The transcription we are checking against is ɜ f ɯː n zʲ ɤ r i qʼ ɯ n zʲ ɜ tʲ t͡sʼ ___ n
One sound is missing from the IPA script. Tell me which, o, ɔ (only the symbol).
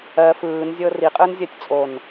o